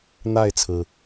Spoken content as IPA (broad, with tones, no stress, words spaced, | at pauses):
n̪a˥˨ɪ̯t͡sʰɹ̩˩